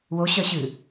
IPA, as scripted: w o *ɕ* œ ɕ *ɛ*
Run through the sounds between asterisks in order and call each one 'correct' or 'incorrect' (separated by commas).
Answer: correct, incorrect